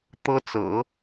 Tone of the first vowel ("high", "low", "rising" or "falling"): high